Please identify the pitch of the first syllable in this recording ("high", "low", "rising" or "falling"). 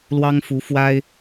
high